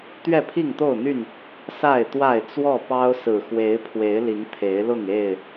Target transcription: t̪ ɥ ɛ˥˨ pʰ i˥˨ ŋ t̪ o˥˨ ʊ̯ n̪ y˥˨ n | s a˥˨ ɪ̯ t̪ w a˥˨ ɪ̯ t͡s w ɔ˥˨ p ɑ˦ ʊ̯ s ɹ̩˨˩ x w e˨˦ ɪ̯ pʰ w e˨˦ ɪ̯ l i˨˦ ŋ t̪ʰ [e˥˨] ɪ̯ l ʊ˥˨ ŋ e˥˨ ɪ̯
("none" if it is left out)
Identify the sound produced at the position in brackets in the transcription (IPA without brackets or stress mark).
e˨˦